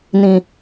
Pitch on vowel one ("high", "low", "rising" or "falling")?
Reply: low